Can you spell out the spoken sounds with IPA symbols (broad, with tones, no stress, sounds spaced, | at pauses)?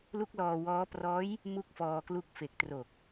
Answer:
l u˦˥ k̚ l ɔː˧ w ɔː˦˥ p r ɔː˦˥ j | m u˥˩ k̚ f ɔː˧ k l u˦˥ k̚ f e˨˩ k̚ t r o˨˩ k̚